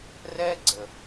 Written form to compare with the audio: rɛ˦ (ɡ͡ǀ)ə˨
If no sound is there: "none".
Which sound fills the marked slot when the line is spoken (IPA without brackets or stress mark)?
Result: ɡ͡ǀ